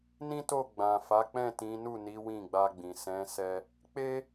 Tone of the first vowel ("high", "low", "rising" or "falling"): high